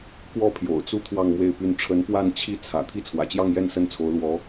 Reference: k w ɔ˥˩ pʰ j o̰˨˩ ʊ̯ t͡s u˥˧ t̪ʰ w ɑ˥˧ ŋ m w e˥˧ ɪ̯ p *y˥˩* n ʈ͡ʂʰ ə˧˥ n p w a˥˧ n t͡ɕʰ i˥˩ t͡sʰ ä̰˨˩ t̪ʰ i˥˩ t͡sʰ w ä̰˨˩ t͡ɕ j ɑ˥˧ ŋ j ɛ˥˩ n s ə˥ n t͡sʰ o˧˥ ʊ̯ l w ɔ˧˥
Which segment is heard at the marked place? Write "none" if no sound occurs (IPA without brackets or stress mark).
y˥˩